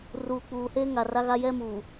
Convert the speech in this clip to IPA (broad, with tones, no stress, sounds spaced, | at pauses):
r uː˨ k͡p uː˨ h e˦ ŋ a˨ r a˦ ɣ a˦ j ɛ˦ m uː˨